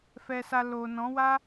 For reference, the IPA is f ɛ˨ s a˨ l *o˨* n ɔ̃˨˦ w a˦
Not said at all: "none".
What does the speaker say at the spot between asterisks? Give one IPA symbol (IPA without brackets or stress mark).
o˨